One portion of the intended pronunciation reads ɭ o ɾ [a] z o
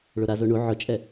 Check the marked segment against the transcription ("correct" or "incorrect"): correct